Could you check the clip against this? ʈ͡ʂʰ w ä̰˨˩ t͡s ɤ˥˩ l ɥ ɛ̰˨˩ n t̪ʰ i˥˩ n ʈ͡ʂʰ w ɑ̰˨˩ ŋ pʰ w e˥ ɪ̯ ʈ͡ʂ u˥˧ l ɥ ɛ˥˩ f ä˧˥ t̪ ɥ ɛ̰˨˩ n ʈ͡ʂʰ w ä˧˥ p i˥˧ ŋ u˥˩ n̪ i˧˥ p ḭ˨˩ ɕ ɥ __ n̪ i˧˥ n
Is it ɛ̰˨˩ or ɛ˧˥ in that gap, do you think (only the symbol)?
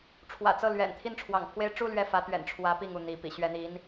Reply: ɛ˧˥